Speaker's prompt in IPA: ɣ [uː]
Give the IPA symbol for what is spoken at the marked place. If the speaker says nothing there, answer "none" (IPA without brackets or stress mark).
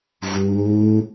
uː